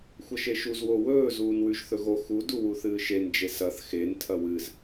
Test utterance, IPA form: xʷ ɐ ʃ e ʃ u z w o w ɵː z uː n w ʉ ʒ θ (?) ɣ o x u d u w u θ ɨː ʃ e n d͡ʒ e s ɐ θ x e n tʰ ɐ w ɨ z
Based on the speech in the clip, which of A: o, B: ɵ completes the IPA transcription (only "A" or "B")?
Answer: B